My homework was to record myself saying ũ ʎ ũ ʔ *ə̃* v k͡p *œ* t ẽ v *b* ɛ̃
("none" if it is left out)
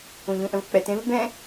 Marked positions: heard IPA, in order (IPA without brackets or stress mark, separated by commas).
ə̃, ɛ, b